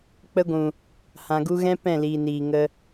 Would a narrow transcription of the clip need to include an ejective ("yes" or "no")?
no